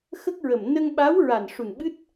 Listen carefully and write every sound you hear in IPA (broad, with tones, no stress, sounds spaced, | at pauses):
x ə˦˥ k̚ ɹ ə˨˩ m n ə˧ ŋ ɓ a˧˥ w ɹ a˨˩ n ʂ u˨˩ n ɓ ɨ˦˥ t̚